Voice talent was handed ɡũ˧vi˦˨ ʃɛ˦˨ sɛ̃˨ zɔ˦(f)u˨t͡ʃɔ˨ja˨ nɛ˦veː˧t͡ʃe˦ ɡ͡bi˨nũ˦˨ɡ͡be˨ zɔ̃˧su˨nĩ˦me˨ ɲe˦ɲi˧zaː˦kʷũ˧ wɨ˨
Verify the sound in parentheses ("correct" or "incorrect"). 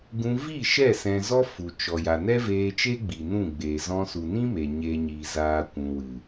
correct